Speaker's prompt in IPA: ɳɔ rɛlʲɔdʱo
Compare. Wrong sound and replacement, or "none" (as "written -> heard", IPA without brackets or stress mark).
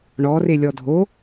ɛ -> e